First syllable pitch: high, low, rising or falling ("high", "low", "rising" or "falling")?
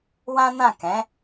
high